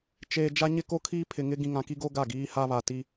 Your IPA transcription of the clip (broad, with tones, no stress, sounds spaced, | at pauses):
t͡ʃ eː˨ d͡ʒ a˦ ɲ ɪ˦ k o˦ kʰ iː˦ pʰ ɪ˨ ŋ ɪ˦ ɡ ĩ˨ ŋ ã˨ k i˦ ɡ o˦ ɡ a˦˨ ɡ iː˦ h a˦ β a˨ t i˦